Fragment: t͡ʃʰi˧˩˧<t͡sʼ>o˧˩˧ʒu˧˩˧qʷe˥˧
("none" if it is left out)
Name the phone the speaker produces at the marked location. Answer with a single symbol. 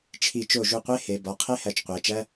t͡ʃ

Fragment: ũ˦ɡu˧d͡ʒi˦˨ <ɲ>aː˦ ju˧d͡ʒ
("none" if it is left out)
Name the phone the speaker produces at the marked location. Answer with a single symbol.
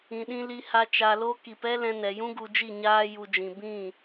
ɲ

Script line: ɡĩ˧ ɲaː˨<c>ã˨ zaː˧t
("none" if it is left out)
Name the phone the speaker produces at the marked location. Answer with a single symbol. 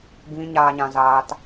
ɲ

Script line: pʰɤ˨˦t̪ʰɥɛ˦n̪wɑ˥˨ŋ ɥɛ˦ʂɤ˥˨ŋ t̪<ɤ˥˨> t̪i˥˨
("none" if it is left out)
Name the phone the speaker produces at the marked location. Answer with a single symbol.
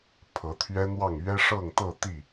ɤ˥˨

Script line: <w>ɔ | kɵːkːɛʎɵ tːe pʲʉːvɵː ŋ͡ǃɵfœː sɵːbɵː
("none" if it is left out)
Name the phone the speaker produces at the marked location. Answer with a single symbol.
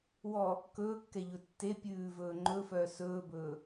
w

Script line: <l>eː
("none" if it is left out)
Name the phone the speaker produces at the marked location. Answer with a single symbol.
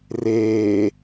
r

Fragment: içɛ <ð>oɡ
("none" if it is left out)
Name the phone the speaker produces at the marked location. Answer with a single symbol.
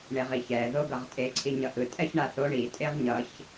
ð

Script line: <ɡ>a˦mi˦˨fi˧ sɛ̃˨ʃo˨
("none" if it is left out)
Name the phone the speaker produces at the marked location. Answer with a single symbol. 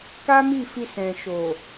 k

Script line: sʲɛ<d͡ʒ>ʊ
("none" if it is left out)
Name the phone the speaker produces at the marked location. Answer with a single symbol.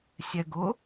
ɡ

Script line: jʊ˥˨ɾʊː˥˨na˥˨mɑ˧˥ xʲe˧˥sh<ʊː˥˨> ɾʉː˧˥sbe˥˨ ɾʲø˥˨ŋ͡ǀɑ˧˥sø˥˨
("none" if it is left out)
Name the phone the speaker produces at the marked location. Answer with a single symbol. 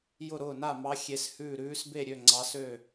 ʉː˥˨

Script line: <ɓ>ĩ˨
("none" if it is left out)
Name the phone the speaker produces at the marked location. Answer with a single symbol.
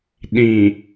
ɗ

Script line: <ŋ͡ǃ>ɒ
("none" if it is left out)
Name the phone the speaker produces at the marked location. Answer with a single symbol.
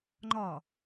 ŋ͡ǃ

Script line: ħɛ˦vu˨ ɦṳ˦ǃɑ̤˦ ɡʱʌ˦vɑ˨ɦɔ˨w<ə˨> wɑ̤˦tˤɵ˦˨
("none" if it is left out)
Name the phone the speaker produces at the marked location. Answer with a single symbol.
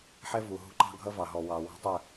ɑ˨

